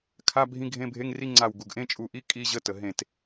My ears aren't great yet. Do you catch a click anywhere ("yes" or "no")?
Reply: yes